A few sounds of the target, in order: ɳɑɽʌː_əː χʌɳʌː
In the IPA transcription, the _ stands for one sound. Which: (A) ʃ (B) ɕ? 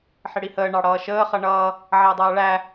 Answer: A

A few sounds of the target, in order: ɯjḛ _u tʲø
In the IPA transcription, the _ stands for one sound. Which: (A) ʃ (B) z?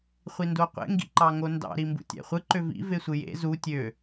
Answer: B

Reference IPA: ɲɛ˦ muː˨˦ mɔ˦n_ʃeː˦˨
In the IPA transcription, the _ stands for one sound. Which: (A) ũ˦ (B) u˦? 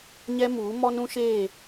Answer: A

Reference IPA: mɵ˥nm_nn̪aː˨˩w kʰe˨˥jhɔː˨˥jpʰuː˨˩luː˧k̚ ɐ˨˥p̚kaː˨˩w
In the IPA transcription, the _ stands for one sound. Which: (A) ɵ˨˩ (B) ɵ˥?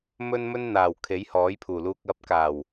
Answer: B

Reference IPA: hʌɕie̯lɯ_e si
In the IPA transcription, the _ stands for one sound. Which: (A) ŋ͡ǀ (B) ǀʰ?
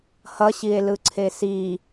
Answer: B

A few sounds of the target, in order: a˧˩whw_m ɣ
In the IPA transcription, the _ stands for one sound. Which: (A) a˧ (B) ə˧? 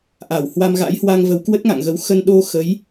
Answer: A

